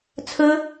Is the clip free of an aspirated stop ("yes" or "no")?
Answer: no